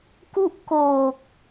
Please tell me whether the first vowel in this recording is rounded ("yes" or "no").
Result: yes